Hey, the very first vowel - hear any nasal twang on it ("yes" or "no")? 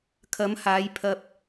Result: no